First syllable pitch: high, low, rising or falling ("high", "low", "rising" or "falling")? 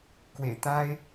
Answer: low